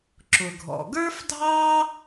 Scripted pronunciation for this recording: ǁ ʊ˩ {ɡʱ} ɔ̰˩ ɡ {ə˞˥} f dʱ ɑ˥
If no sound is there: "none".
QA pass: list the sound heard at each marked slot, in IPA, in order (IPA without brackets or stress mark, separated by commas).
ɡʱ, ə˞˥